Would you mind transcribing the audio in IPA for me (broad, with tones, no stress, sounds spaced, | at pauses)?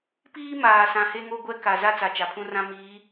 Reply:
p iː˦ m aː˨ s ã˨ h e˦ ŋ o˦ ɡʷ ɛ˦ k a˨ z a˦ t͡s a˨ t͡ʃ a˨ pʰ ũ˦ r ã˦ m iː˨˦